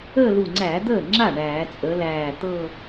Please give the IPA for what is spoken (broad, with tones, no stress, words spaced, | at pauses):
əː˥˧lu˧˩ŋ͡ǀæ˧˩˧ d̪əː˥˩ŋ͡ǁa˥˩ ɳæː˧˩˧t͡sʼə˨˥læː˧˩ t̪ɤ˥˧